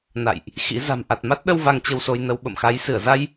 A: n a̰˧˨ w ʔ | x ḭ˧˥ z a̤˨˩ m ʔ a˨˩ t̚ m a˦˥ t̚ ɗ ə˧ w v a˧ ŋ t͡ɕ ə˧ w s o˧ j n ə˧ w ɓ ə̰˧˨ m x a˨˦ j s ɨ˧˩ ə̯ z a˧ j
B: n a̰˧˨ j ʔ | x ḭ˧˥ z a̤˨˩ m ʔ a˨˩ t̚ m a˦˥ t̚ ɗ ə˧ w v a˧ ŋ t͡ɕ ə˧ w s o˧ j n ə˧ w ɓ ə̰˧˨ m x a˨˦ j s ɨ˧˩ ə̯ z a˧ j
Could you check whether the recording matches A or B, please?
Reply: B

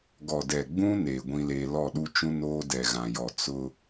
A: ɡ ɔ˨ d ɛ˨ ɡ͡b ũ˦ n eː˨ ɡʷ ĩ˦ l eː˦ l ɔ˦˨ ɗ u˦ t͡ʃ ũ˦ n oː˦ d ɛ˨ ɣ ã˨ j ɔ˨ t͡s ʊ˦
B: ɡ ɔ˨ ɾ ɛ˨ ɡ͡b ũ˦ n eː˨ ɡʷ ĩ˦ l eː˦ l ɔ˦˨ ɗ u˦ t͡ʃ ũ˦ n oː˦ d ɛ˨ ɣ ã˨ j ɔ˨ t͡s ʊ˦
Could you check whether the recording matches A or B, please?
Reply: A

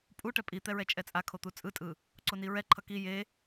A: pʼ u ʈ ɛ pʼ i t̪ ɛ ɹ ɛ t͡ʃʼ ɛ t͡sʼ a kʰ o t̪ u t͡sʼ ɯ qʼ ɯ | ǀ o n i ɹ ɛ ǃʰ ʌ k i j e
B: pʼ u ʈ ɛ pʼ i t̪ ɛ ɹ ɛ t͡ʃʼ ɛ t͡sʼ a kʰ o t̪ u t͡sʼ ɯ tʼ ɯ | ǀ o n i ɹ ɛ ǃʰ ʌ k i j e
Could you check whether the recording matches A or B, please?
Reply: B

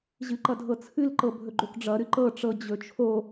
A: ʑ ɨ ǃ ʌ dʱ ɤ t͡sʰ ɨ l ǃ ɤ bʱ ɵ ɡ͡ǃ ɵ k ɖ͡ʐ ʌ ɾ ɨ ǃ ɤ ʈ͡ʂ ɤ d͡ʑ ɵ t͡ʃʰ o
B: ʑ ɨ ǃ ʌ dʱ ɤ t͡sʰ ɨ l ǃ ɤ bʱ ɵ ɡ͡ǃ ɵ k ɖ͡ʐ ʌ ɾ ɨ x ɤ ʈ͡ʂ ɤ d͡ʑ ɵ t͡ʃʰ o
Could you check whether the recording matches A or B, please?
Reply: A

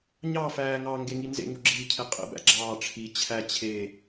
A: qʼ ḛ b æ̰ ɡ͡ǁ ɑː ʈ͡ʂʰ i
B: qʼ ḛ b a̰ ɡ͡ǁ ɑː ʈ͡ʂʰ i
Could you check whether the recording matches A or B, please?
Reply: A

